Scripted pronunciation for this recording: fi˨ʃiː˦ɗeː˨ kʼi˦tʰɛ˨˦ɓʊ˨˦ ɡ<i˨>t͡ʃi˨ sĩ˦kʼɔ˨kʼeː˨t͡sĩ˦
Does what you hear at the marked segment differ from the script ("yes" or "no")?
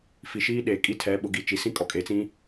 no